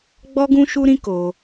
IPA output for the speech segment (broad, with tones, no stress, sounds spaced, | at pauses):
ɡ͡b ɔ˦ ɡ ũ˦ ʃ u˦ ɾ ĩ˦ k o˧